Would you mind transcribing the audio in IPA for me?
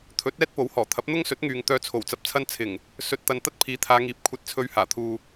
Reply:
t̪ʰ ɵ˨˥ t̚ ɛː˥ t̚ p o˨˥ w h ɔː˨˩ t̪ʰ ɐ˨˥ p̚ n̪ ʊ˥ ŋ s ɵ˨˥ t̚ ŋ yː˨ ŋ t̪ œː˨˧ t͡sʰ o˨˩ w t͡s ɐ˨ p̚ t͡sʰ ɐ˧ n t͡sʰ ɪ˨˩ ŋ | s ɵ˨ t̚ t̪ ɐ˨ n t̪ ɐ˥ t̚ pʰ iː˨˥ t̪ʰ aː˨˧ ŋ iː˨˥ p̚ kʷʰ ɐ˧ t̚ t͡sʰ ɵ˧ ɥ h aː˨˩ t̪ʰ uː˨

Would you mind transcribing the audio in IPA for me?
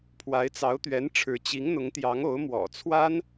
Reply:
pʰ w a˧˥ ɪ̯ t͡s ɑ˧˥ ʊ̯ t̪ ɥ ɛ˧˥ n ʈ͡ʂʰ ɻ̩˧˥ t͡ɕ i˧˥ ŋ n̪ ʊ˧˥ ŋ t̪ j ɑ˧˥ ŋ o˧˥ ʊ̯ m w ɔ̰˨˩ t͡sʰ w a˥ n

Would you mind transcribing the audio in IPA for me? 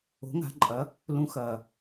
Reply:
o̤˩˥ ŋ a̤˩˥ ǃʼ ɐ˩˥ | l ũ˩˥ x ɐː˩

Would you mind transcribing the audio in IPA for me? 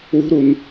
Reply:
w ṳ ɾ u n

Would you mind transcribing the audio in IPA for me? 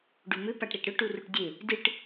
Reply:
ɖ u m ʏ p a ʈ ɾ e ʈ ɾ ʏ ʈ u r u ʈ dʲ e | d ɨ ʈ

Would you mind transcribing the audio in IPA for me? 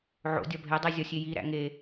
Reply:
ʕ o̰ dʲ ɒ bʱ e dˤ e zʲ ɒ sʲ e j i ɾ æ̰ ŋ e

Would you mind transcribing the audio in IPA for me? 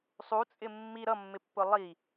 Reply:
sˤ u t͡sʼ ɪ mː i ɾ ʌ mː ɪ pː ʊ lˠ i

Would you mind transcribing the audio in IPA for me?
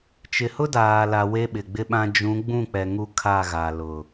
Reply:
t͡ʃ ɪ˨ h ʊ˦ d aː˨ l a˨ w e˦ ɓ ɪ˨ ɡ͡b ɪ˦ ɓ ã˦ d͡ʒ ũ˨˦ ɡ͡b ũ˦˨ k͡p ɛ˨ ŋ u˦ kʰ a˦˨ ɣ a˨ l ʊ˨

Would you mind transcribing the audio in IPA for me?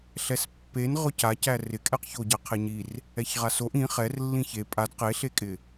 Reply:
ɬ ɛ s pː e n ʁ ʊ c a c æ r ɪ kʼ ɛ q ç o ɟ a qʰ e ɲ i r | ɛ ç ʁ a s o ʔ ĩ χ ɛ r lː ĩ ç e pʼ a d q e ɬ e kʼ ɪ

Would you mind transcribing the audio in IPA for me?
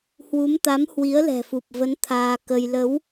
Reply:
h w u˨˦ m t̪ a˨˦ m h w i˨˦ ə̯ l ɛ̤˨˩ f u˨˩ p̚ v ə˨˦ n t̪ʰ aː˧ k ə˧ j l ə˨˦ w

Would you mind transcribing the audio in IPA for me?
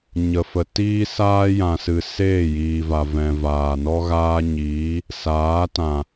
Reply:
ɲ ə˧ f ə˧ t iː˦ s aː˦ j ã˨ s ɨ˨ s eː˦˨ j iː˨ v a˨ v ɛ̃˨ v aː˨ n ɔ˦ ɣ aː˦ ɲ iː˨˦ | s aː˨˦ t ã˨

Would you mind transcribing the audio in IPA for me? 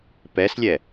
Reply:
p ɛ s lʲ ɛ

